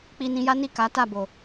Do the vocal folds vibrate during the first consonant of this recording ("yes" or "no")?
no